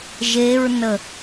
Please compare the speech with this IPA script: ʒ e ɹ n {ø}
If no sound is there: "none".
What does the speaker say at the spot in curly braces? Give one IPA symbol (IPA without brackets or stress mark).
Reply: ə